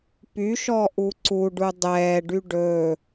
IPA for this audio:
p y ʃ ɔ ʔ u ǀ u ɖ u dˤ ɛː ɖ y ɖ ɵ

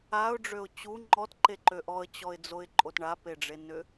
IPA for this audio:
a ʊ̯ ɖ͡ʐ ø ʊ̯ t͡ɕ u ŋ͡ǃ ɔ t ǃ e ǃ ø ʔ ɔ ə̯ t͡ɕ ɔ ɪ̯ d͡z o ɪ̯ ǃʼ o t ɳ a p e ɖ͡ʐ e n ʏ

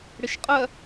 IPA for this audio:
ɽ ɪ ʃ qʼ ɜ

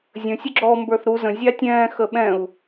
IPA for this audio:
zʲ ə̃ sʲ ʊ ɡ͡ǁ ɔ m b ə˞ θ ɾ u z ə̃ zʲ ɑ tʲ ɛ̃ː x ə ɓ ɛ̃ u̯

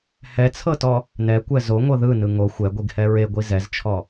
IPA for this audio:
h ɛ t͡sʰ ɤ t ɔ | n ɛ kʷ ɛ z o ŋʷ ɤ ð ɯ n ɯ ŋ o xʷ ɛ ɡʷ i ɡ h ɛ ɹ e ɡʷ i z ɛ z t͡ʃʰ ɔ

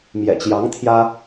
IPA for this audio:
m j ɛ̰˨˩ t͡ɕ j ɑ˧˥ ŋ t̪ʰ j ä˥

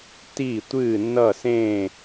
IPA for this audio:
t i˥˩ tʷ ɨ˥˩ n ʌ˥˩ s ẽ˥˩

